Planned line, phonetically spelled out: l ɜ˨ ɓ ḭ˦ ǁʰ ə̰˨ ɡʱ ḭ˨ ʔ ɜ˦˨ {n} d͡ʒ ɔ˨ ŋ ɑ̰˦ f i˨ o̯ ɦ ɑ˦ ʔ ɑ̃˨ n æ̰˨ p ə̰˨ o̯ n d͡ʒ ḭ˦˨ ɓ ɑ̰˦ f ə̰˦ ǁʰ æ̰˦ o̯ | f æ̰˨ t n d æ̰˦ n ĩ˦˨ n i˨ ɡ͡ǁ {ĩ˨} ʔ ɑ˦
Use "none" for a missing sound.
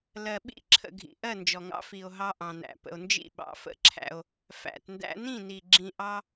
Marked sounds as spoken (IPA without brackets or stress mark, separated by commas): n, ĩ˨